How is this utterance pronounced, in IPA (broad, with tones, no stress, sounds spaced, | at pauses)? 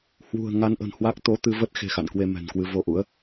h w ṳ˨˩ ə̯ ŋ a˧ n ʔ ə̤˨˩ n h w a˦˥ k̚ t̪ o˨˦ t̪ ɨ˧ v ə˦˥ t̚ x e̤˨˩ x a̰˧˨ n k w e˧ m ɛ̤˨˩ n k w ɨ˧ v o˧ ʔ ṵ˧˥ ə̯